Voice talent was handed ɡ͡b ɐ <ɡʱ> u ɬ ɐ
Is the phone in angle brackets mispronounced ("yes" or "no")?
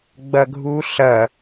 no